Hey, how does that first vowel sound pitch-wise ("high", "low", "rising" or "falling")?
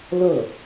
falling